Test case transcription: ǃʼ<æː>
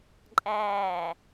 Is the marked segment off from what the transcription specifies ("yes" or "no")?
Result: no